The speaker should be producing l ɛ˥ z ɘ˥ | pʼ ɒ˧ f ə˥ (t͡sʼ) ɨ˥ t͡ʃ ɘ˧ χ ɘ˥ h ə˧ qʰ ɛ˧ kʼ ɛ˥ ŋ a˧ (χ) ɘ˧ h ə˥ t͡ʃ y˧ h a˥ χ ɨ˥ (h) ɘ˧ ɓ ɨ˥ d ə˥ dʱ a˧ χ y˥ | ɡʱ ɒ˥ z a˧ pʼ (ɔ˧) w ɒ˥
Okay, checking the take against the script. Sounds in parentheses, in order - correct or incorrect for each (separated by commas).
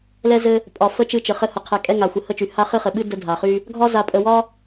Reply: incorrect, incorrect, incorrect, incorrect